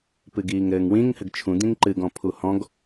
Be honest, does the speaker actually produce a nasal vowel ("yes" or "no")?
yes